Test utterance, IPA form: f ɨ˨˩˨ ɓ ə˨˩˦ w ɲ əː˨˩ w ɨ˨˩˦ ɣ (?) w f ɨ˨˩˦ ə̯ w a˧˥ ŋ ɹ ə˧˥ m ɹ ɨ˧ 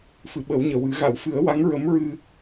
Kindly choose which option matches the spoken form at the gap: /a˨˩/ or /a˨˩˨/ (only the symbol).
a˨˩˨